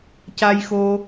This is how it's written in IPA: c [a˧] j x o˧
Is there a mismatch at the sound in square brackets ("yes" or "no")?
no